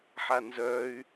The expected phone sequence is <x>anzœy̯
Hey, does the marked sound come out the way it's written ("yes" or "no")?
no